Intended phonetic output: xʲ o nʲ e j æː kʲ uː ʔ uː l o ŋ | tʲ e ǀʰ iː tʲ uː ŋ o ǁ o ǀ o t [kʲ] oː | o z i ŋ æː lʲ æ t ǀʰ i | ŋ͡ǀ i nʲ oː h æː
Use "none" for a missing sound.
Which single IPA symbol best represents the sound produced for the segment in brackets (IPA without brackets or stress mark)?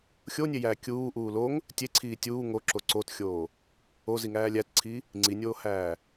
xʲ